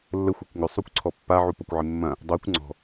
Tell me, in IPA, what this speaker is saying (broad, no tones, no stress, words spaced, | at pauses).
lːəxʷakʷ ŋʏsˤukʷǀʰɔ pːa ʕupɐkʷʕɪmːɐ̃ | dˤokʷ ŋ͡ǀɔ̤